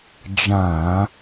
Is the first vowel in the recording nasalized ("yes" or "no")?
yes